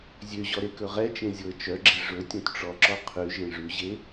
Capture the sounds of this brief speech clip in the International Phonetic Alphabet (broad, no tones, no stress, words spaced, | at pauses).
zʲøʑɔ ɾekɵʁɛt͡ʃẽ zʲoə̯t͡ʃœɡ͡ǁe ʐɵ tʲõtʈ͡ʂɔǁɔ qʰʉ ʒẽʐʉʑe